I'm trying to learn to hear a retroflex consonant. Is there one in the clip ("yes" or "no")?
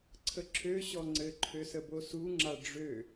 yes